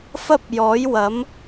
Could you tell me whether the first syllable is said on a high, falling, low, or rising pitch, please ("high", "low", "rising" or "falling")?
high